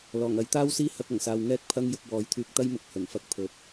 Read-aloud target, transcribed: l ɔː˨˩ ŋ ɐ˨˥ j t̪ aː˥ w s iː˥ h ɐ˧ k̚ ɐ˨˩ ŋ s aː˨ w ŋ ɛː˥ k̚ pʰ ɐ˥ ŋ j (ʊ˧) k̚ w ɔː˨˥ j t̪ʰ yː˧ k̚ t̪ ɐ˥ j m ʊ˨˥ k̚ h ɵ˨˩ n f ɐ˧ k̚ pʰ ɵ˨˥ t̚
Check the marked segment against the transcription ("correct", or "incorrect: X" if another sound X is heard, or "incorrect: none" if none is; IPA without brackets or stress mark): correct